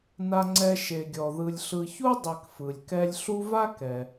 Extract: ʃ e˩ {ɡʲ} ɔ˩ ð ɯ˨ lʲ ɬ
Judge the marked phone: correct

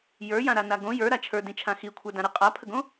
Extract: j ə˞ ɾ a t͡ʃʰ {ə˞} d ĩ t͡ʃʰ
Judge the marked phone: correct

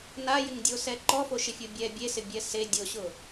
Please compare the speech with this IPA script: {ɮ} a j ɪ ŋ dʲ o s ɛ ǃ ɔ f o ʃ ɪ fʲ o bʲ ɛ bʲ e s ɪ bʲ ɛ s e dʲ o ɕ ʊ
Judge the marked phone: incorrect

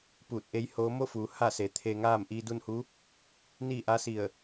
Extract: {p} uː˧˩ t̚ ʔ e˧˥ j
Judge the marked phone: correct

